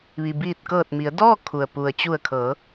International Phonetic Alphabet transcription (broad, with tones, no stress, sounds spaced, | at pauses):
ʋ i˩ b iː˧˩ t̚ k ɤː˧˩ t̚ m i˩˧ ə̯ d ɔː˥˨ kʰ u˩ ə̯ p u˩ ə̯ t͡ɕ u˧˩ ə̯ kʰ ɤː˩˧